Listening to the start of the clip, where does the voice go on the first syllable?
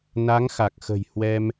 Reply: rising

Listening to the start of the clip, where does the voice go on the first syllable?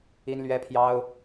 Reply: high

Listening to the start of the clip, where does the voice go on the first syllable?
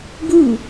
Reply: falling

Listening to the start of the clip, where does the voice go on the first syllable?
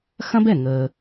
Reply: high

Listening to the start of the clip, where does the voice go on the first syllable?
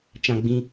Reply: high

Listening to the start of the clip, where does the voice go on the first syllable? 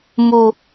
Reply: high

